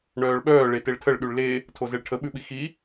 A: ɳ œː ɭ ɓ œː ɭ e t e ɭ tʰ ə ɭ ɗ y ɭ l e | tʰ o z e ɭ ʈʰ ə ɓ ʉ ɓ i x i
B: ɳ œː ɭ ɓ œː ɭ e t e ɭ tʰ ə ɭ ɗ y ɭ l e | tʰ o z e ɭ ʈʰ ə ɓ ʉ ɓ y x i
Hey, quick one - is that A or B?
A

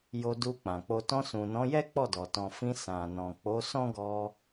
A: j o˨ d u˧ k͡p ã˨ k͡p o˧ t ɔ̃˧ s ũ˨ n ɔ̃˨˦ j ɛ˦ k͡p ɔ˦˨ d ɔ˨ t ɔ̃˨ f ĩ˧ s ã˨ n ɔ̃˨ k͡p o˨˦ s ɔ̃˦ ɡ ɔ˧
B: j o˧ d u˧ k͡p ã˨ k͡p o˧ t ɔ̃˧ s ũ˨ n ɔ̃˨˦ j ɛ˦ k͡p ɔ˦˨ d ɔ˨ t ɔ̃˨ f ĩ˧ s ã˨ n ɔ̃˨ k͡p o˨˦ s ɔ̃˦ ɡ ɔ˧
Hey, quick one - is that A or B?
B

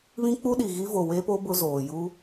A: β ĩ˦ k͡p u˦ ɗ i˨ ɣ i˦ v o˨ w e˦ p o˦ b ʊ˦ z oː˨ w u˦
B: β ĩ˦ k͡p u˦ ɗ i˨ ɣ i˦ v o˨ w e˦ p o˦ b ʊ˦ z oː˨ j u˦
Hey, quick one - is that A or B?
B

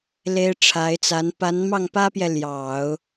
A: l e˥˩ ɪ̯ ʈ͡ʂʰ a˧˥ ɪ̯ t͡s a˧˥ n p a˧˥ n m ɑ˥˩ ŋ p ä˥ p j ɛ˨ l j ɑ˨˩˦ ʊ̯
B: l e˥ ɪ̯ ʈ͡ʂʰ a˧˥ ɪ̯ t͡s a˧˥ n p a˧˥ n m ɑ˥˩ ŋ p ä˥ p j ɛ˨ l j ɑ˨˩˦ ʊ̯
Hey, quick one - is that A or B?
B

